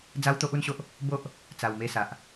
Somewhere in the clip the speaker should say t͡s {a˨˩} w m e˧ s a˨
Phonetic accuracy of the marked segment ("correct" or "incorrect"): correct